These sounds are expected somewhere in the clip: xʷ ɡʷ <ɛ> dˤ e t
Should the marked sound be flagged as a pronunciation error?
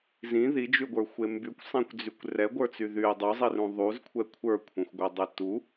no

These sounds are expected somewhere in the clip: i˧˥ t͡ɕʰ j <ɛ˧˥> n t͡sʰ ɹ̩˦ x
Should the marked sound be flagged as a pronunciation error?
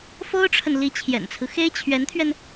yes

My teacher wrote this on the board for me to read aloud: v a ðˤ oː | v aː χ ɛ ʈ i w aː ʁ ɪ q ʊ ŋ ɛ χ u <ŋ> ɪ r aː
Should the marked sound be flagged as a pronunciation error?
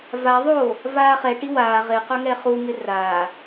no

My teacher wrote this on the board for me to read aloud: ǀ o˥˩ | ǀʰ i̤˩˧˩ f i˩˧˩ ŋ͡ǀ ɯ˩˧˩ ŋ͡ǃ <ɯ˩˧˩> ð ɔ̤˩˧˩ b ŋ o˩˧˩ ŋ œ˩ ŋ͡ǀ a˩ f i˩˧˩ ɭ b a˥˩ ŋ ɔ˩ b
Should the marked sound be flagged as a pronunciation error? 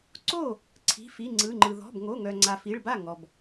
yes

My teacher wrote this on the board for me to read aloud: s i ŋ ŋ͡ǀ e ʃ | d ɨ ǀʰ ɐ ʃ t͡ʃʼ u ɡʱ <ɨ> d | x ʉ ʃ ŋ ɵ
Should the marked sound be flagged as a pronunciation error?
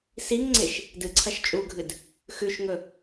no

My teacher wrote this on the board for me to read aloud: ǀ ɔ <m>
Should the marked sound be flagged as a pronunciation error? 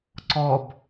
yes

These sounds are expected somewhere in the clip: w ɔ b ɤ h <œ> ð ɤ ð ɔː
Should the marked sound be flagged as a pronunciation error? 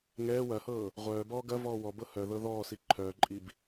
no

